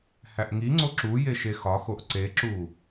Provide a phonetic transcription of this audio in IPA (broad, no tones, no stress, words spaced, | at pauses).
hæʔŋiŋ͡ǀo ǁuje ʃexɒxoʔ ǀeǁu